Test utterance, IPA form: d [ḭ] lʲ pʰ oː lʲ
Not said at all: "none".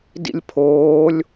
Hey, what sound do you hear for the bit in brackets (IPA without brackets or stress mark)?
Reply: ḭ